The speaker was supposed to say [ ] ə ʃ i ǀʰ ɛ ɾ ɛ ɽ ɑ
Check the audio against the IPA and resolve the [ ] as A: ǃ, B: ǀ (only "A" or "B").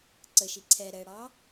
B